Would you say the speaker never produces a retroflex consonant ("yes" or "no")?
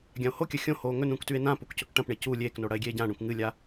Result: no